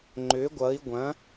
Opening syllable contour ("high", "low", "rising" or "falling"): rising